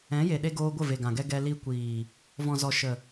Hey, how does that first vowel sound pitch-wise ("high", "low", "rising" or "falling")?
rising